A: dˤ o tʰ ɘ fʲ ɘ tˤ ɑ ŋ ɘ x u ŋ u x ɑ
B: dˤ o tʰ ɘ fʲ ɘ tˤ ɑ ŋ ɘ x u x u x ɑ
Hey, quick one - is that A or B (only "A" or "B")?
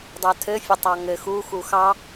B